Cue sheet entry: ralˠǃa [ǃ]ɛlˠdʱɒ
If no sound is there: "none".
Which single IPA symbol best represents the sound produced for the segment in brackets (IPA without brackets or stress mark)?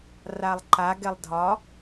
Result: ɡ